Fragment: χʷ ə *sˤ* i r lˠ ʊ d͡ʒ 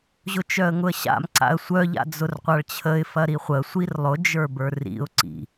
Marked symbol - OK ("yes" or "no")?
no